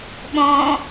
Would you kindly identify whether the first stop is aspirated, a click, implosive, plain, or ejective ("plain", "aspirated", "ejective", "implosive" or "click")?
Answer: implosive